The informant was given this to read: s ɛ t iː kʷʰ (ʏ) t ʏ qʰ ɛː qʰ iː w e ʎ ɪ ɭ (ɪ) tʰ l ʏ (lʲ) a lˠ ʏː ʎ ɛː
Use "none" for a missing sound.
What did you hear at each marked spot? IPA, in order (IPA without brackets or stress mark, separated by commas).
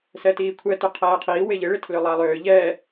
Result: ɛ, ɪ, lˠ